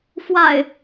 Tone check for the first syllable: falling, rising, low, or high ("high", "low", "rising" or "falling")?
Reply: low